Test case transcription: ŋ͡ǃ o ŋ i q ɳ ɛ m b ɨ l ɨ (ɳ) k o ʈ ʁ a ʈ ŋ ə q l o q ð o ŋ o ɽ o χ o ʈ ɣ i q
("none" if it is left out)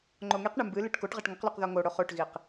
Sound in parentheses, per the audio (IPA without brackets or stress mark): ʈ